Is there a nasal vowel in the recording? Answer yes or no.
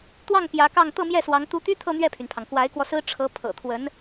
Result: no